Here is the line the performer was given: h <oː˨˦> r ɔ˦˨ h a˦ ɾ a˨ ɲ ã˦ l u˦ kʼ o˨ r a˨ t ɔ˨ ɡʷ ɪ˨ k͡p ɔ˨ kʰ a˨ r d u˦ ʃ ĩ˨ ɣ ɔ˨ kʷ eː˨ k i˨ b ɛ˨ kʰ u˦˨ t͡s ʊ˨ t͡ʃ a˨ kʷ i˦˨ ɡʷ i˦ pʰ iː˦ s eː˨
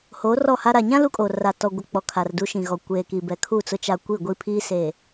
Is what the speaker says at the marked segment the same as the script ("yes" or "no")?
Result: yes